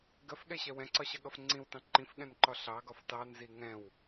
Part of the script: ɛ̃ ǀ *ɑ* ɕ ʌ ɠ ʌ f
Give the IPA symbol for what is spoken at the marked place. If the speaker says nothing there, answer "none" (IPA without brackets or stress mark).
ɒ